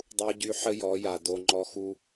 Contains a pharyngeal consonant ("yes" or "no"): yes